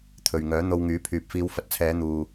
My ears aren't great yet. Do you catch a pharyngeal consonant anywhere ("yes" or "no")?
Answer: no